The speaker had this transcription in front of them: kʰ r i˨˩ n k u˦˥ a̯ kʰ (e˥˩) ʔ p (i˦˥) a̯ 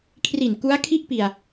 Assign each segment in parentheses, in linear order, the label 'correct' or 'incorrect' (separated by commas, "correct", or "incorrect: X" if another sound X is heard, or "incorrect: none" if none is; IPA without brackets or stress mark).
incorrect: i˥˩, incorrect: i˧